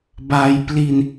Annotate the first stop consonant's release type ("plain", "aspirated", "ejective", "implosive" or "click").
plain